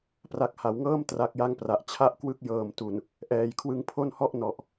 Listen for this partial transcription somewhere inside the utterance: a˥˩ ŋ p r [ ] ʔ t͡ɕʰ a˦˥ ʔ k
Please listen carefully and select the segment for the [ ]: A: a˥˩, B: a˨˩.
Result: B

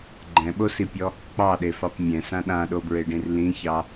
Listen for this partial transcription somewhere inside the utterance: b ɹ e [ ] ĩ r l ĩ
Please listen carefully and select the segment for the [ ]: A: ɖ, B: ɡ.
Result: A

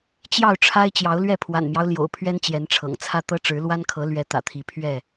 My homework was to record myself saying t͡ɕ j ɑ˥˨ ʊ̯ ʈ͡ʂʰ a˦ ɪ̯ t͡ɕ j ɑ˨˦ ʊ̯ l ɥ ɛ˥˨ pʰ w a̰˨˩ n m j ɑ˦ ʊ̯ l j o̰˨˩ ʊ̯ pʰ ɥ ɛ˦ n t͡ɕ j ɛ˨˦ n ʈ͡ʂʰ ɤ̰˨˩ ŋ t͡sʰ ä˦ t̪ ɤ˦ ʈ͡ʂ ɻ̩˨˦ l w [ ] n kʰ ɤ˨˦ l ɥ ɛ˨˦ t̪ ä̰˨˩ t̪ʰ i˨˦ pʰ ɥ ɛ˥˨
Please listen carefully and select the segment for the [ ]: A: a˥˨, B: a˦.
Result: B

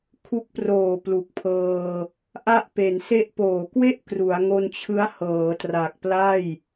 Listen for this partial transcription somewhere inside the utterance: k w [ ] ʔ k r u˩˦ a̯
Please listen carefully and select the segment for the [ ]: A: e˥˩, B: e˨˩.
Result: A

